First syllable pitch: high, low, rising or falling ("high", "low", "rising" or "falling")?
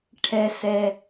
low